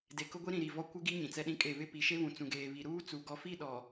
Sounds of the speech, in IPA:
d e˨ k ʊ˦ ɡʷ i˦ ɾ ĩ˨ ɾ i˨ v ɔ˦ kʷ ɪ˦ ɡ i˦ ɲ ĩ˨ t͡s ɛ˦ ɗ ĩ˦ kʼ e˦˨ β ɪ˦˨ p i˨ ʃ e˦ β ũ˨ t͡s ũ˨ ɡ eː˨ β i˨ ɾ uː˦ t͡s u˨ ɡ ɔ˨ f i˦˨ ɗ ɔ˨

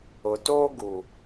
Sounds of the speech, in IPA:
ʊ˨ t oː˦ ɡ u˨

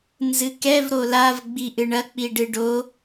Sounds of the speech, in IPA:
n z ɨ k ɛ v ɾ o l a v ɡ͡b i ʔ ɨ ɳ ɐ k͡p i ɖ ɨ ɖ o

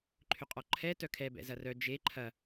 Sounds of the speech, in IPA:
ǃʰ ʏ qʼ ɔ ǃʰ ɛ t œ kʰ ɛ b ɛ̰ z ɐ r œ d͡ʒ e ǃʰ ɐ

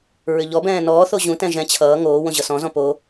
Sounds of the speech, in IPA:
ɹ ʏ ʎ ɔ b ɛ̃ː n ɔː θ o ʑ ũ t ɛ̃ ʒ ɛ̃ t͡ɕʰ ʌː ŋ oː w õ ʑ ʌ s ɔ̃ z ɔ̃ p o

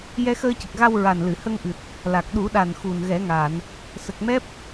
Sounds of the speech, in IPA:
j ɛ˧ x əː˧ c ə˨˩ k̚ ɣ a˧ w ɹ a˨˩ n l ɨ˨˩˨ h ə˧ ŋ ʔ ɨ˨˩ t̚ | l a˨˩ k̚ ɗ u˨˩˦ ɗ a˨˩ n x u˨˩ n ɣ ɛ˨˩˦ ŋ a˨˩˨ n | s ə˨˩ k̚ m ɛ˦˥ p̚

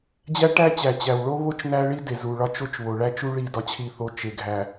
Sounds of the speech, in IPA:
d͡ʑ æ˦ ʈ æ˦ t͡ɕ æ˨ t͡ɕ æ˨ w ɭ o˦ β o˦ t͡ʃ n æ˦ ɭ i˦ d e˨ z u˨ ɭ ɒ˦ t͡ʃ o˦ t͡ʃ β o˨ ɭ æ˦ t͡ʃ u˦ ɭ i˦˨ d ɒ˦ t͡ɕʰ i˦˨ θ o˦ t͡ʃ e˨ ɡʱ æ˨

